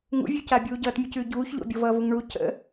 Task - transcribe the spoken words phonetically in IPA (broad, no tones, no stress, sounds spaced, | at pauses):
ŋ ṵ vʲ ʉ c a bʲ uː ɟ ʌː t mʲ ʉ c ʉː ɟ uː ç ʎ o̰ bʲ o v ʌː v u ŋ ɳ u c ə̰